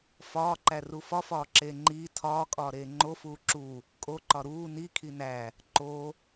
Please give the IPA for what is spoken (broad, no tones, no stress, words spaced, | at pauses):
fɒːǃæru fɒfɒːǁeː ŋ͡ǃiː tʰɒːkʼɒːɾeː ŋ͡ǃofuː ǁu | kʼoǃɒ ɾuː nikʰi næ | ǃo